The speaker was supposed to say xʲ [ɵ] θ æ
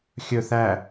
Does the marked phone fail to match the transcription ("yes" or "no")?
no